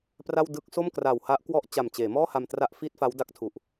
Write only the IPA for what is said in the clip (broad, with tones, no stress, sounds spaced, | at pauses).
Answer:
p r a˥˩ w d ɯ˥˩ k̚ s o˥˩ m k r a˨˩ w h a˦˥ ʔ k w ɔ˥˩ ʔ t͡ɕ a˨˩ m t͡ɕ eː˩˦ m ɔː˥˩ h a˧ m t r a˥˩ ʔ f iː˥˩ t̚ f a˦˥ w d a˦˥ k̚ tʰ u˨˩ ʔ